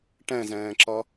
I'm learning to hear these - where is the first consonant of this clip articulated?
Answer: retroflex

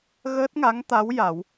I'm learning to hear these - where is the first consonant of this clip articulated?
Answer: velum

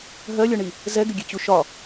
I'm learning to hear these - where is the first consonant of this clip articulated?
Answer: throat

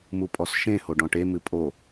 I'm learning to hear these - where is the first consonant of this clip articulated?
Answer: lips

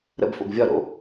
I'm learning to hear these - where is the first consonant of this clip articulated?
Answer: tongue tip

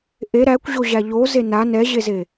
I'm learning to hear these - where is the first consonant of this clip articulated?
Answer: throat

